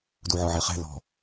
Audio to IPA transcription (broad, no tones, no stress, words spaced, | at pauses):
duʕɔʕeχɛ̤ lɔ̤